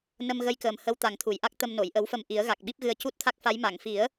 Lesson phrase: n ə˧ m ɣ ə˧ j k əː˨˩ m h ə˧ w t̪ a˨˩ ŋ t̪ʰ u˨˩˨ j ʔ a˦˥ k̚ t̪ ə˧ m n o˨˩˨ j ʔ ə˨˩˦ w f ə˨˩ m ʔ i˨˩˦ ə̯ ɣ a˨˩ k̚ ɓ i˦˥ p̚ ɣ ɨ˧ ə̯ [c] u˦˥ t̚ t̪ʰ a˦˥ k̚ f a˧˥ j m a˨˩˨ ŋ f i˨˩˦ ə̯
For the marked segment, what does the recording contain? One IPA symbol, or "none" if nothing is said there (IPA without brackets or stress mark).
c